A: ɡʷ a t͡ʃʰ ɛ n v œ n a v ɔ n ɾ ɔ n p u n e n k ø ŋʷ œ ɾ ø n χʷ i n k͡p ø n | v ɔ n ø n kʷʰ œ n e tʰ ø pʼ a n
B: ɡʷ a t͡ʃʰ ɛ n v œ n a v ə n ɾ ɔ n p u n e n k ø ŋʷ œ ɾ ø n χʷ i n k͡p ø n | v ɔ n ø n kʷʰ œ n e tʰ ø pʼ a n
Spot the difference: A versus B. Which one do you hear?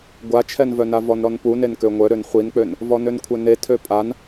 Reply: A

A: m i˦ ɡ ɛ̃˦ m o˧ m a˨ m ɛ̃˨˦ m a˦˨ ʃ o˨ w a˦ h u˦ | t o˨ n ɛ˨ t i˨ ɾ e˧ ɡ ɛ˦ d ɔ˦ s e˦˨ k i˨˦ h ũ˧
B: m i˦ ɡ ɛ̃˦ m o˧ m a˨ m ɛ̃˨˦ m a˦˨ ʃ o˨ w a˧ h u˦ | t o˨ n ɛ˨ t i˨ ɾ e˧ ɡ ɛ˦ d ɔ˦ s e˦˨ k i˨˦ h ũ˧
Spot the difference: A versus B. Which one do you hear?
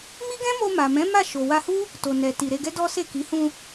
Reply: B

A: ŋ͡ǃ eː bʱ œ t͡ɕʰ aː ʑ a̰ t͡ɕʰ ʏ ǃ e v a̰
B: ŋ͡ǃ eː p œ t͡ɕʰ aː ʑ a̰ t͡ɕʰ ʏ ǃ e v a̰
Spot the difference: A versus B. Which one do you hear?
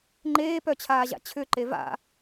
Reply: B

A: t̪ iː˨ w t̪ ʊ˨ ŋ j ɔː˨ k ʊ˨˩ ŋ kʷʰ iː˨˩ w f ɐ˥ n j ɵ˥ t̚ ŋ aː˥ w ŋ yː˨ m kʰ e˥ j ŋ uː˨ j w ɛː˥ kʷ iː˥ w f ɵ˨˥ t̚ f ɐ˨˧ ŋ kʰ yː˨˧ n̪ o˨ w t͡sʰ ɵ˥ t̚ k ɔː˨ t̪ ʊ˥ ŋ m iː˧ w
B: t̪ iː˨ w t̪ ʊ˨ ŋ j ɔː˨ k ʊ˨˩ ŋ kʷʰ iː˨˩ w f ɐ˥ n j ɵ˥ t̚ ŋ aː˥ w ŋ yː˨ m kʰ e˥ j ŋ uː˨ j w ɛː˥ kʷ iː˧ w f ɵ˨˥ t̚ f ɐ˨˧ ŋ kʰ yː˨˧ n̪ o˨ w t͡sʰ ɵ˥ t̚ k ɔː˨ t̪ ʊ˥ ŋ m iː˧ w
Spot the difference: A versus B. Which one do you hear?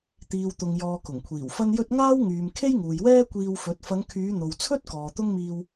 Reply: B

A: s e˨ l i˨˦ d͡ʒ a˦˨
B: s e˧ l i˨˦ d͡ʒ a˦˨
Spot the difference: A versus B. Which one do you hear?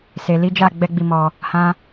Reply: A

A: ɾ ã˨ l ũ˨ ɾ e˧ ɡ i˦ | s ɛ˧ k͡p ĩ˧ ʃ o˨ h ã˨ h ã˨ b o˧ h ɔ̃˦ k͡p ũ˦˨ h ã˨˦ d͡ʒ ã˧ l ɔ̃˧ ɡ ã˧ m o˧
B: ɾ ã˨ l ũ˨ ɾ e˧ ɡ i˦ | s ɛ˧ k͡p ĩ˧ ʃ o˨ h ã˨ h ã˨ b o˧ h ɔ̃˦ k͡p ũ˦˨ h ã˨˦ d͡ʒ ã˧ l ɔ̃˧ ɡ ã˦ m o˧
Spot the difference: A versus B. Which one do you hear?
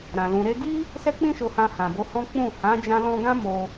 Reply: B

